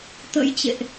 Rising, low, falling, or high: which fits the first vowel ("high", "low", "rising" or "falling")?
rising